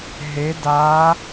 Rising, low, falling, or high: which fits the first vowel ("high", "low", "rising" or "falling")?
rising